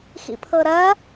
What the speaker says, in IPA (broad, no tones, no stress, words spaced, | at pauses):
xḭpʰɤɾɐ